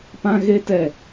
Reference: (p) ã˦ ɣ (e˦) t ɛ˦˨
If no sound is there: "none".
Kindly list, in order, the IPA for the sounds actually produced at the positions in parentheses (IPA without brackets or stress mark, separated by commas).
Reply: p, e˦